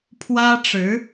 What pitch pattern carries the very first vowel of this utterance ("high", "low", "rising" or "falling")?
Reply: high